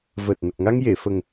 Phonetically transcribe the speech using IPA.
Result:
v əː˨˩ t̚ n ə˨˩ k̚ ŋ a˧ ŋ j e˨˩˨ f ə˨˩ ŋ

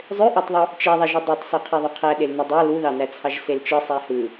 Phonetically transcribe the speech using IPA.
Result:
zˤ ø ʔ ɑ tˤ ðˤ u | t͡ʃ e ðˤ æ ʒ u dˤ ø tˤ s o qʰ i ðˤ u qʰ æ ɗ e l n u dˤ ɑ l u ð ɑ n æ t͡sʰ ɑ ʒ s e l t͡ʃ ɯ sˤ æ h ɯ

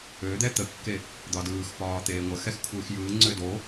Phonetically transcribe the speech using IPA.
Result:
ø d̪ ɛ t̪ ə kː e | d̪ ɒ d ɯː x p ɒː t̪ eː ŋʷ ə x ɛ x kʷʰ ɯː x j ɯː ŋ͡ǀ ø d o

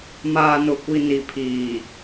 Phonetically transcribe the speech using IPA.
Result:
m aː˨ n ʊ˨ kʷ i˨ n i˨ pʰ iː˨

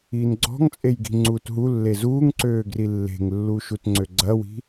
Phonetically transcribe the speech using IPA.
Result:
iː n ɡ͡ǀ ɔ̤ ŋ t͡sʼ e j ɡ i̤ ŋ͡ǀ uː t ɦ u lː e z uː ŋ ǀ øː ɡ r i lː e̤ ŋ lː uː ʃ u t ŋ͡ǀ ø ɡ͡ǀ ɐ w i̤

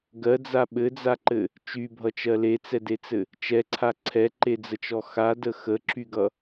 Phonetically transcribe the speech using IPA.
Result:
ɡ ɜ d͡z a ɓ ɘ d͡z a ǃ ɘ | t͡ʃ y bʱ ʌ t͡ʃ ɜ l e t͡s ɛ d e t͡s ɘ | t͡ʃ ɛ ǀʰ a ǀʰ ɛ ǃ e d͡z ə t͡ʃ ɔ x a d ə x ə ǁ y ɡ ʌ

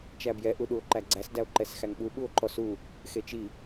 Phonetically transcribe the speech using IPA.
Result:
t͡ʃ æ b j ɛ ʔ u ɗ u o̯ ǃ æ ɡ͡ǀ æ s d æ o̯ ǃ ɛ s x æ ŋ ɓ u ɓ u o̯ ǃ ɔ s u | x e t͡ʃ i

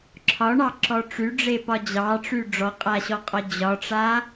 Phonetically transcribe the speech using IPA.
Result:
ǁʰ ɒ ɳ ɑ ǁ ɔ ʈ͡ʂ y ɖ͡ʐ e p ɒ d͡ʑ ɑ ʈ͡ʂ y ɖ͡ʐ ɔ qʼ a ɕ ɔ qʼ ɒ d͡ʑ ɒ ʈ͡ʂ a

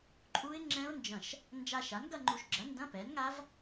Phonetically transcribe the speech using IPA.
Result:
ǃʼ u˦˥ ɪ̯ ŋ͡ǁ ɛ̃˦˥ ʊ̯ n d͡ʒ ɐ̃˧˩ ʃ | n d͡ʒ a˧ ʃ a˩˥ n ɡ ɐ˥˧ ŋ͡ǃ u˧ ʃ ɡ͡ǁ ɐ˩˥ n d ɐ̃˧˥˧ p ɛ˩˥ n ŋ a˦˥ v

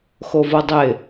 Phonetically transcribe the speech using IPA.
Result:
x o v o dˤ ɪ

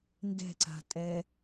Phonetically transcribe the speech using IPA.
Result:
n d ɛ̤ ǀ a̤ tʼ ɛ

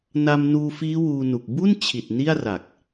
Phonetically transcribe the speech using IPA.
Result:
n a˧ m n uː˧ f iː˦˥ w uː˧ n u˨˩ k̚ b u˥˩ n t͡ɕʰ i˨˩ t̚ n i˥˩ a̯ r a˨˩ k̚

